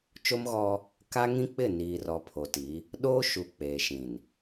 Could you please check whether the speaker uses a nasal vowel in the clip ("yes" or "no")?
yes